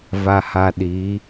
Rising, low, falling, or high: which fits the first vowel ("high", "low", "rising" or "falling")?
low